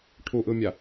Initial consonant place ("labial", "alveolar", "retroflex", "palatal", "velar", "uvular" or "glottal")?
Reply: retroflex